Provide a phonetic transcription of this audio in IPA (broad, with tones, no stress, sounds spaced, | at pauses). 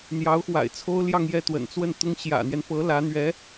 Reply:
n̪ j ɑ˧˥ ʊ̯ x w a̰˨˩ ɪ̯ t͡sʰ o˥ ʊ̯ l j ɑ˥˧ ŋ j ɛ˥˩ t̪ w ə̰˨˩ n t͡s w ə˥˩ n t̪ ʊ˥ ŋ ɕ j ä̰˨˩ n̪ j ɛ˦ n p ɤ˧˥ l ä˧˥ n̪ ɥ ɛ˧˥